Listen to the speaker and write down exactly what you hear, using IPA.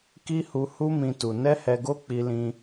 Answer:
k i˦ h u˧ h u˦ m ĩ˦ t u˧ n ɛ˦ h ɛ˧ ɡ o˦ k͡p i˧ l ĩ˧

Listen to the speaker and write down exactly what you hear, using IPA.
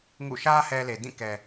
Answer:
ŋ ṵ˦˨ ʃ ä˦ h ɛ˦ l e˨ d ĩ˦˨ k ɛ˨

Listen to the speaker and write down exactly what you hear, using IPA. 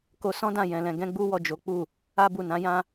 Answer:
k o˧ s ɔ̃˦ d ã˦˨ j ɛ̃˧ l ɛ̃˧ ɡ ɛ̃˦ ɡ͡b u˦ w ɔ˦˨ d͡ʒ o˨˦ k͡p u˦˨ | a˦ b u˦˨ n ã˨˦ j ã˦

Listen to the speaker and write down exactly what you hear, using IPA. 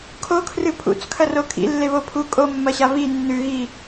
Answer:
kʰ o kʰ r ɨ pʰ ṵ t͡s kʰ ɐ r o kʰ ḭ lː e β o pʰ u kʼ o mː ɐ ɕ a β i nː ʉ ɣ i

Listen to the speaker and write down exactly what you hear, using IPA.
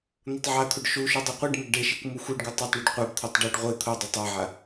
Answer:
n̪ o tˤ ʕ a t̪ʰ u ɖ ʃ u ʃ u dˤ u qʷ e ɖ m ə ɡ ɖ e ʃ i kʷ m u xʷ i ɖ ɡ ø tˤ e tˤ ɳ ʉ ɖ qʷ a b t̪ʰ o tˤ ɖ ø ɖ ʁʷ e t̪ʰ o dˤ o tˤ a ʕ a

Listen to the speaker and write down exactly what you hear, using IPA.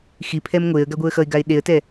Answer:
x i pʰ ɛ m ŋʷ e ə̯ ɡ a ɡʷ ɯ ə̯ x ʌ ɪ̯ ɡ a ɪ̯ ɗ e ə̯ t ɛ

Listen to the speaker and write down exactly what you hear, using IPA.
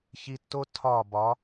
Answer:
ç i˧ tː o˦ tʰ ɒ˦˨ b ɒ˨˦

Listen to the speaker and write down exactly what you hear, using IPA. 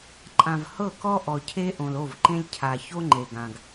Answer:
ǃʼ ã˨ v h ɤ˦˨ k ɔ˦ ʔ ɔ˨ cʰ e˦ ʔ õ˨ l o˦˨ v ǃ ẽ˦ lʲ cʰ a˨ ç o˦ ŋ͡ǃ e˨ ɡ ã˨ ɡ

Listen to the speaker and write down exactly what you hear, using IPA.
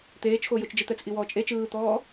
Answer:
t̪ eː t͡ʃ x o j o t͡ʃ d͡ʒ ɯ t̪ ɛ t͡s ʔ i w ɔː t͡ʃʼ e t͡ʃ ɯː t̪ ɔː

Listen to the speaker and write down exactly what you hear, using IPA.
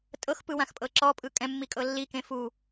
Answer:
tʼ ɤ x p ɯ w ã x pʼ ɤ ǁ ɔ pʼ ɯ kʼ ɛ̃ mː i kʼ ɤ lː i k ẽ f u

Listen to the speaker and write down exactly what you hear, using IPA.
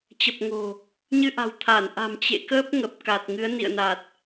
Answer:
t͡ɕ ə˨˩ p̚ ŋ o̤˨˩ | ɲ ɨ˧ ʔ a̤˨˩ w t̪ʰ a˧˩ n ʔ a̤˨˩ m t͡ɕ ḛ˧˨ k əː˦˥ p̚ ŋ ə˨˩ p̚ k a˨˩ t̚ ŋ ɨ˨˦ ə̯ n ḭ˧˨ ə̯ n a˨˩ t̚

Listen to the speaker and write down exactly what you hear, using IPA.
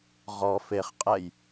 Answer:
ʁ ɔ f e χ qʼ ɛ j

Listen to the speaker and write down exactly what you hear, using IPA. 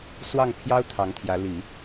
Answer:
s w ɑ˥˩ ŋ pʰ j ɑ˥ ʊ̯ t̪ʰ ɑ˧˥ ŋ t̪ʰ j ä˧˥ l i˨˩˦

